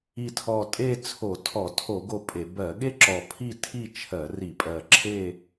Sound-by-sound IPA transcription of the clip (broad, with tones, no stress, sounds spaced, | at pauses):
i˨˩ tʰ ɔ˨˩ tʼ e˥˧ t͡sʰ o˧˩˧ tʰ ɔ˧˩˧ tʰ o˧˩˧ ɡ o˥˧ pʼ e˧˩˧ b ɜ˧˩˧ ɠ e˥˧ ǁ ɔ˨˩ pʰ i˥˧ tʰ i˥˧ t͡ʃʰ ɜ˧˩˧ r i˧˩˧ pʼ ɜ˨˩ ǁʰ e˥˧